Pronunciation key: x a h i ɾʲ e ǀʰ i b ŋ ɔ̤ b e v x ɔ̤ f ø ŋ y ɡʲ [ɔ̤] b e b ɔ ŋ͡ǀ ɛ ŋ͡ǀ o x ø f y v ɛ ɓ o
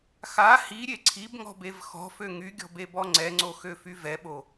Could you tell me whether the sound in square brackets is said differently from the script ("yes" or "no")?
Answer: no